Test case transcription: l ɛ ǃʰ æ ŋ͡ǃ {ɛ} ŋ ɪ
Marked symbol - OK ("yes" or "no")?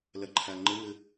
no